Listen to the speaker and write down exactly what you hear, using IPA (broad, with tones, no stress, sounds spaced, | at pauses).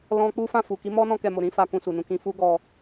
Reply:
l ɔ̃˧ k͡p u˦ f ã˦˨ f u˨ k i˨˦ m ɔ˦ n ɔ̃˧ k ɛ˨ m o˨ ɾ ĩ˨˦ f a˦ k ũ˧ s u˨ n ũ˨˦ k ĩ˧ f u˦ ɡ ɔ˧